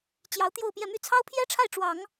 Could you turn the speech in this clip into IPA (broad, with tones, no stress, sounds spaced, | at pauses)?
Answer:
t͡ɕ j ɑ˧˥ ʊ̯ t̪ j o˥˧ ʊ̯ p j ɛ˥˧ m y˥˩ t͡sʰ ɑ˥ ʊ̯ pʰ j ɛ˥ ʈ͡ʂʰ a˥˩ ɪ̯ ʈ͡ʂ w ɑ˨˩˦ ŋ